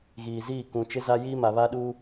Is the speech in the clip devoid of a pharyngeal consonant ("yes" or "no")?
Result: yes